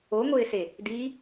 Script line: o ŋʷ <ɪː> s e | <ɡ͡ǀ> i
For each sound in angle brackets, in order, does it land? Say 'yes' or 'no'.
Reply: yes, no

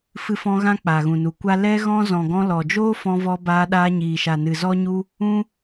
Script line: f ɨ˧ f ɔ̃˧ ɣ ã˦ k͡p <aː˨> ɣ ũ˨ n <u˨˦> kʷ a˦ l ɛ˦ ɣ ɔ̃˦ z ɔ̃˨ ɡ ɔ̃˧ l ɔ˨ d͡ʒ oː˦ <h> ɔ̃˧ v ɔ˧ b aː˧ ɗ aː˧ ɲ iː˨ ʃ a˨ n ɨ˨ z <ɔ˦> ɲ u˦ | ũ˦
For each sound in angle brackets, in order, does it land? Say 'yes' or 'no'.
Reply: yes, yes, no, yes

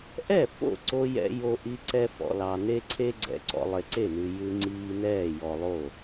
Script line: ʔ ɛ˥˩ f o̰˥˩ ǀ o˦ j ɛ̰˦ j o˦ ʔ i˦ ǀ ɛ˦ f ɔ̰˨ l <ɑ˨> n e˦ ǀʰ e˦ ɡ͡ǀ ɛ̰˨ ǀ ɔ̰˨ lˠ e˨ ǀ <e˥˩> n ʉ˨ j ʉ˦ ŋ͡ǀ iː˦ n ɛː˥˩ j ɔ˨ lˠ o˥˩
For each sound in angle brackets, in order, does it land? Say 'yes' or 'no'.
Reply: yes, yes

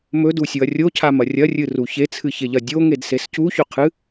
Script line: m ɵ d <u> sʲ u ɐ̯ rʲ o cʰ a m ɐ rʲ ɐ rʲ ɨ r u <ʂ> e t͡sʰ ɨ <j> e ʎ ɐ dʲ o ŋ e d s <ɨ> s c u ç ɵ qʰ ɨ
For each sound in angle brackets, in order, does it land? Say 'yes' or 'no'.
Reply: yes, no, no, no

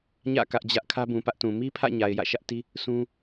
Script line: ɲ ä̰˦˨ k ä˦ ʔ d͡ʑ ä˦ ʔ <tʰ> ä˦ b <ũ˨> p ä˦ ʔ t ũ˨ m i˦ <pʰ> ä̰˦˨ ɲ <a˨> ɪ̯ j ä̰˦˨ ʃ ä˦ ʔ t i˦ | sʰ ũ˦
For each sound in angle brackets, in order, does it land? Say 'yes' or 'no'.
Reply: no, yes, yes, yes

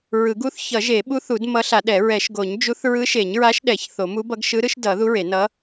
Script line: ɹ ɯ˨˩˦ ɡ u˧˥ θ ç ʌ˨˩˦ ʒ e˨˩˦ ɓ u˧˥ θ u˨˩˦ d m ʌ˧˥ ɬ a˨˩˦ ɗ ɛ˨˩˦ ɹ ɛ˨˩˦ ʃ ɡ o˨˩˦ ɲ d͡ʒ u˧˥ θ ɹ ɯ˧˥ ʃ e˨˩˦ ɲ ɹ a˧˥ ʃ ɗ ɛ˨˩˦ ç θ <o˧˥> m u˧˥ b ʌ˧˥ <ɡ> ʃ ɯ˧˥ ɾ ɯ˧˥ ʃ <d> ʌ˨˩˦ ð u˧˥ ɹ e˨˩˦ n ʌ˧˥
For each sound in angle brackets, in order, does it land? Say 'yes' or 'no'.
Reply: no, yes, yes

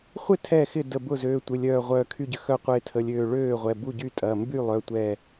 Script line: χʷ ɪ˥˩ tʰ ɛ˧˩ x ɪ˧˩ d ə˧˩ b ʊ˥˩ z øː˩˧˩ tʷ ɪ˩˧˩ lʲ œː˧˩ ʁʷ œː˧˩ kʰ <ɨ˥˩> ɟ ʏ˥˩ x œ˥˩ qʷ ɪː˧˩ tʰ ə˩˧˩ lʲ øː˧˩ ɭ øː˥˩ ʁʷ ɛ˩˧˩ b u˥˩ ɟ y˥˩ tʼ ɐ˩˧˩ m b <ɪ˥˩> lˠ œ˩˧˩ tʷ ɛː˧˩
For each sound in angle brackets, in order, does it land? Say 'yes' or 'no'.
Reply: no, no

